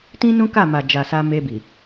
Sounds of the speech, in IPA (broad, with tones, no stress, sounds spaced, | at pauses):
t ĩ˦ n ũ˦ k a˦˨ m a˨ d͡ʒ a˨ s a˧ m e˧ b i˨